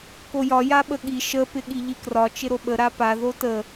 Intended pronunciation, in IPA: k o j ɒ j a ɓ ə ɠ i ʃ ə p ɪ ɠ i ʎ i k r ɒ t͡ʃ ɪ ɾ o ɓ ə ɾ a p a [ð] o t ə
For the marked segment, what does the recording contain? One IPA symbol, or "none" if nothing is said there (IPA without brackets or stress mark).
ð